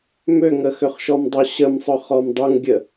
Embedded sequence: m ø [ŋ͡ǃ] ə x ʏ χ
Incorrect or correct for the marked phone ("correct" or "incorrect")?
incorrect